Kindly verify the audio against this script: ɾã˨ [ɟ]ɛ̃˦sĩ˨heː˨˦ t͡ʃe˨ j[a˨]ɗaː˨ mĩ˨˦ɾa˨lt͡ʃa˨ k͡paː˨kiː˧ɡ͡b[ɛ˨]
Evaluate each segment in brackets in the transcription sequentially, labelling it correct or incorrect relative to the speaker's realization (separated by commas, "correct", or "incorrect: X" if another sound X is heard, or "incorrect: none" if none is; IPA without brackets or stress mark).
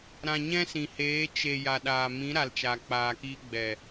incorrect: ɲ, correct, correct